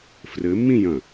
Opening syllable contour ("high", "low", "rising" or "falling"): rising